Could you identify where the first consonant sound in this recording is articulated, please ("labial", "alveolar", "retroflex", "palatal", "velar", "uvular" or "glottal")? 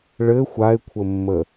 retroflex